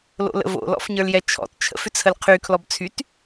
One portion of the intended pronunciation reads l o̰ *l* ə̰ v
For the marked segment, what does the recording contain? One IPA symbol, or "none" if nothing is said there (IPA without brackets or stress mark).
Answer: l